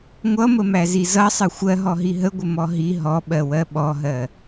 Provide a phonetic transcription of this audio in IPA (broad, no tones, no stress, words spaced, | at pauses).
ŋʷʌməmæzi zʌsˤə xʷɜɦɔɦi ɦəɡʷəmɔ ɦi ɦɔɓɜwɜ ɓɔɦɜ